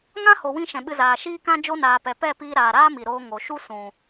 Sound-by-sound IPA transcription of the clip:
ŋ ã˦ h o˨ w ĩ˧ ʃ ɛ̃˨ ɓ ɨ˧ z aː˨ ʃ iː˦ k ã˦ d͡ʒ o˧ n aː˨ p ɛ˨ p ɛ˦˨ p iː˧ ɾ aː˨ ɾ aː˦ m i˨ ɾ oː˧ ŋ o˨ ʃ u˦ s ũ˨

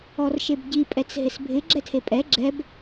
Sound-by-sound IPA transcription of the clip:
ɔ r ʃ e b ɟ i pʼ ɛ t͡s ɦ ɪ s bʱ ɪ ɡ͡ǁ ɛ tʰ e pʼ ɛ ɡ͡ǁ ɛ b

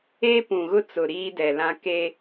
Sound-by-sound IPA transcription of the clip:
e˦ p ũ˨ ɣ ʊ˦ t͡s ʊ˨ ɾ iː˦ d ɛ˨ l ã˦ k e˦

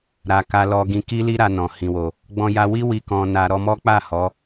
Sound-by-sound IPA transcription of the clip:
ɾ a˨ k a˧ l ɔ˧ ɡ ĩ˧ k i˦ l i˦ ɾ a˧ n ɔ̃˨ h ĩ˨ w o˨ | ɡ͡b ɔ̃˧ j a˧ w i˦ w i˧ k ɔ̃˧ n a˧ ɾ ɔ˧ m ɔ˦ k͡p a˦˨ h ɔ˨˦

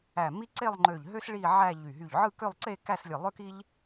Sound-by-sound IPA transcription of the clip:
æ˧˩ m i˥ ǀ e˥˧ lˠ ŋ͡ǃ ø˧˩ ʎ ɦ ø˥ s ɭ i˥˧ ʕ æ˥˧ ʎ y˧˩ ɦ y˧˩ ʎ ʕ ɯ˥˧ k ø˥˧ lˠ ǀ e˥˧ k æ˥˧ s lʲ ɯ˧˩ lˠ ø˥ k i˥ ʎ

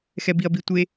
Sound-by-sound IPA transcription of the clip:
x ɛ b i ɐ̯ b i tʷ e

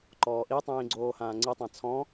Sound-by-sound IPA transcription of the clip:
ǃ ɔː ʔ i tˤ ĩː ɡ͡ǀ oː h ãː ŋ͡ǀ i tˤ ã t͡sʰ ɔ̃

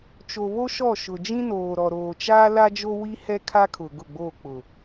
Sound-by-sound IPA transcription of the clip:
t͡ʃ o˨ β o˦ ʃ ɔ˦˨ ʃ ʊ˨ d͡ʒ ĩ˦ n oː˨ ɾ ɔ˨ ɾ oː˨ t͡ʃ aː˦ l a˦ d͡ʒ o˦ w i˦ h ɛ˦ kʰ a˦ kʰ ʊ˨ ɡ ʊ˦˨ ɡ͡b oː˦˨ k͡p ʊ˨

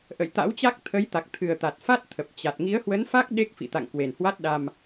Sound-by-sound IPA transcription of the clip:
ʔ ə̰˧˨ j t̪ a̰˧˥ w t͡ɕ a˦˥ k̚ t̪ʰ ə˨˦ j t̪ a˨˩ k̚ t̪ʰ ɨ˨˩ ə̯ t̪ a˨˩ t̚ f a˦˥ t̚ t̪ʰ ə˨˩ p̚ t͡ɕ a˨˩ t̚ ŋ i˨˦ ə̯ h w ə˨˦ n f a˦˥ k̚ ɗ e˦˥ k̚ f ḭ˧˨ t̪ a̰˧˨ ŋ k w e˨˩ n h w a˦˥ t̚ ɗ a˧ m

